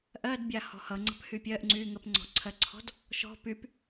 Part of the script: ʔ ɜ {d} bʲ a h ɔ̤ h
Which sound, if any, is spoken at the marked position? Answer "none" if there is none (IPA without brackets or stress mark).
d